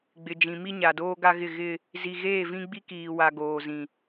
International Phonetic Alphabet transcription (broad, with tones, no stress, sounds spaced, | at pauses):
ɡ͡b ɪ˨ d͡ʒ ĩ˨ m i˦ ɲ a˨ d oː˦ ɡ a˦ ɣ ɪ˦˨ ɣ ɪ˦ | z i˨ ɣ eː˦˨ v ĩ˦ ɡ͡b i˦ k iː˨ w a˨ ɡ oː˨ z ĩ˨